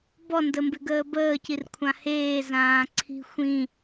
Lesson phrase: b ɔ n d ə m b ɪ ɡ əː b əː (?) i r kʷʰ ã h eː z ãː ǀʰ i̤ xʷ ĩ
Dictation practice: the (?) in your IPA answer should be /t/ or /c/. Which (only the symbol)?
c